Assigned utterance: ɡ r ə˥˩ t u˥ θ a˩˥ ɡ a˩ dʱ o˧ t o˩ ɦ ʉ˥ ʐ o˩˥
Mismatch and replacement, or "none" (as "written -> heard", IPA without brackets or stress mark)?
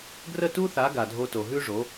none